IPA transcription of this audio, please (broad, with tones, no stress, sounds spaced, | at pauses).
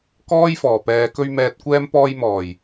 k ɔː˥ j f ɔː˨˩ p ɛː˨ k ɵ˧ ɥ m ɛː˨ t̚ kʷ ɛː˧ m p ɔː˧ j m ɔː˨˩ j